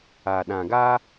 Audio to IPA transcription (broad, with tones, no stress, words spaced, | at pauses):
a˨ɗã˨ɡa˦